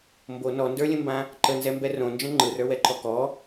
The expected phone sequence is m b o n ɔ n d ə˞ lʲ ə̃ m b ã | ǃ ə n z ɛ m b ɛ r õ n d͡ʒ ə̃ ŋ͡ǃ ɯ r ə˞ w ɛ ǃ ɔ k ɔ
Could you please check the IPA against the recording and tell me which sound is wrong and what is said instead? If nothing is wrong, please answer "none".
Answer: none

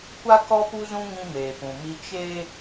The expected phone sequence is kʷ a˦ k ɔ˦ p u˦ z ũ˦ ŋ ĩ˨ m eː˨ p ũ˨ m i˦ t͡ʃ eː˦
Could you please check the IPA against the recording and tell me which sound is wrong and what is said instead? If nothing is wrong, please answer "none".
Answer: ĩ˨ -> ĩ˦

